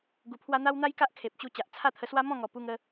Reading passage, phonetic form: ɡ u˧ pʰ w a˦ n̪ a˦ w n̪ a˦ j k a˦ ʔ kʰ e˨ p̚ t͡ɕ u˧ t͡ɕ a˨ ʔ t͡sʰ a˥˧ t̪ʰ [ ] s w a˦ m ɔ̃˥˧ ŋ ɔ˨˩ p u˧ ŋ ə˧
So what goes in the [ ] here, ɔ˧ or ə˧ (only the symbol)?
ə˧